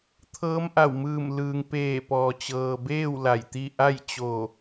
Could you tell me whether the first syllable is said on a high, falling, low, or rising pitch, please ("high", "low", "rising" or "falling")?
rising